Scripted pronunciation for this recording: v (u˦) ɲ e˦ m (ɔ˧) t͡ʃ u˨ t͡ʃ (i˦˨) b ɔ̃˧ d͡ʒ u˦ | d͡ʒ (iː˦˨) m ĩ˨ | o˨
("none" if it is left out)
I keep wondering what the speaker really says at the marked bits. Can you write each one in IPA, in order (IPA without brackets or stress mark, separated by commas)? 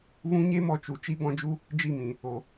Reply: ũ˦, ɔ˧, i˦, i˦˨